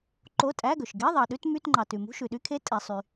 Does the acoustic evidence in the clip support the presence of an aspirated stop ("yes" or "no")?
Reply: yes